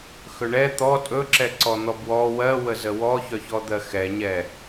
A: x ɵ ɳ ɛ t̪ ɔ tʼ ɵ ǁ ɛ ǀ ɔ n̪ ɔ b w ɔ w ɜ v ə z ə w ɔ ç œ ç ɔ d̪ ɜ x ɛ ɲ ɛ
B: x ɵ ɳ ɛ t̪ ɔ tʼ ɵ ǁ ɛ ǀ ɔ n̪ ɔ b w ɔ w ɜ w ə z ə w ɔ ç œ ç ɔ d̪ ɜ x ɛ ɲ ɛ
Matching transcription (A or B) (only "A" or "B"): B